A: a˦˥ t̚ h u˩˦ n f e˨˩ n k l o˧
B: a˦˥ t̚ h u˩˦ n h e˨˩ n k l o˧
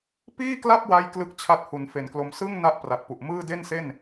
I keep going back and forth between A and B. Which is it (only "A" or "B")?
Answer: A